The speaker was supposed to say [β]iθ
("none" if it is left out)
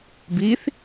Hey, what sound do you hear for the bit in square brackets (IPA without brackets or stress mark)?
b